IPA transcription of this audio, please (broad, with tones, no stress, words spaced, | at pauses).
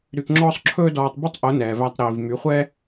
ɾy˧kŋ͡ǁɔː˦sˤ ǁʰɵː˦dɔː˧tˤby˦tˤ ʔo˨˦nɛː˨væ˧tˤ ɾiː˨vmy˨˦χʷɛː˦